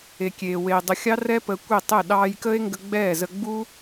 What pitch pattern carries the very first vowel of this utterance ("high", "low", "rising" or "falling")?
low